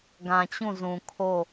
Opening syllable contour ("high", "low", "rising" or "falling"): low